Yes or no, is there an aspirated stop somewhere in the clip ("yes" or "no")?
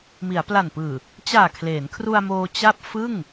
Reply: yes